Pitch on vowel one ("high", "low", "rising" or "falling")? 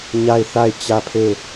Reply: falling